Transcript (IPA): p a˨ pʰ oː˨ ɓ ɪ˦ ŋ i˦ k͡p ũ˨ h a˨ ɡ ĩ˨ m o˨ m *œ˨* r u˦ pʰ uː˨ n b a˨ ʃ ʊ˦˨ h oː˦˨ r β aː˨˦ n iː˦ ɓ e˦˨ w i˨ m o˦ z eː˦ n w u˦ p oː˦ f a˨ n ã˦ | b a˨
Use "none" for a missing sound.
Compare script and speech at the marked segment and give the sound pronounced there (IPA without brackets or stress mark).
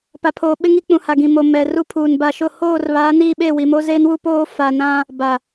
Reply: ɛ˨